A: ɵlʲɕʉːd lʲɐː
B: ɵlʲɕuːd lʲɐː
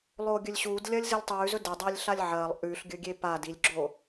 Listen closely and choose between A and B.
B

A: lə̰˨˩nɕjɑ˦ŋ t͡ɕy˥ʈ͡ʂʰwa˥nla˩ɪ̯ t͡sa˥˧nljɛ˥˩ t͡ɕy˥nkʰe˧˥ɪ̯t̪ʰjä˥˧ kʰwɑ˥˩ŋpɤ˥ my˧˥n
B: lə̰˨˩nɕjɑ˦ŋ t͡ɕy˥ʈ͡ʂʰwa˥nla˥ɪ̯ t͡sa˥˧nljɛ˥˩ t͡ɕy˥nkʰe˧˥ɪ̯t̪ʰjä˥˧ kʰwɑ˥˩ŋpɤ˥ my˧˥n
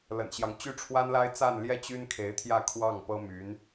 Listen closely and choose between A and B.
B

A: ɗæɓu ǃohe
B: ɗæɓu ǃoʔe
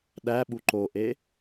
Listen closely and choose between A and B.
B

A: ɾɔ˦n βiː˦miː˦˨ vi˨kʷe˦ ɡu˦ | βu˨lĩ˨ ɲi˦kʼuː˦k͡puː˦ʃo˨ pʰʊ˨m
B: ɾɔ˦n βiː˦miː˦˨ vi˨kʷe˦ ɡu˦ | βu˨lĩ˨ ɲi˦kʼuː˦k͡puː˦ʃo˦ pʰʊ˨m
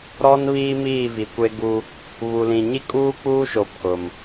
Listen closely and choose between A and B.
A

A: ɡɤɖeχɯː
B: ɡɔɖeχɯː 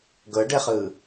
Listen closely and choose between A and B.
A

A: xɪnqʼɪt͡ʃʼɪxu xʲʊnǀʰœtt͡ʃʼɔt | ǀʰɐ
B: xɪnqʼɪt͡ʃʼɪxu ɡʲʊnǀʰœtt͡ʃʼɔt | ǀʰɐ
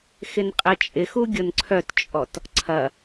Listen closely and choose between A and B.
B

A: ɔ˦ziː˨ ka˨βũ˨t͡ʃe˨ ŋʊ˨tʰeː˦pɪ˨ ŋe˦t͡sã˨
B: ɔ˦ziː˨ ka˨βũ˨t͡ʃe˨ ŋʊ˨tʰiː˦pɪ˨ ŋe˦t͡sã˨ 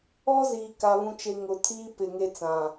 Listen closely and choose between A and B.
B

